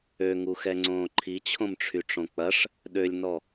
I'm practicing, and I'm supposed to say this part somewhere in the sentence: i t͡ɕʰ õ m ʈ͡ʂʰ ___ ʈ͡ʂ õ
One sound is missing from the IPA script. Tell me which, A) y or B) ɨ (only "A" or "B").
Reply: A